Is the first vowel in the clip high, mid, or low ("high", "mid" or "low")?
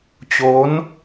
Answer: mid